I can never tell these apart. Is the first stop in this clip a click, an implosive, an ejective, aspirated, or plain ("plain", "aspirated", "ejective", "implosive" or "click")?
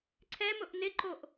click